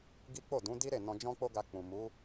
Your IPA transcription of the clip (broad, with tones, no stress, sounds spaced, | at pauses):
ɡ i˦ k͡p o˦˨ d ũ˨˦ d i˦ ɾ e˦˨ n ɔ̃˧ d͡ʒ ɔ̃˦ k͡p o˦ ɡ a˧ k͡p ũ˨ m u˨˦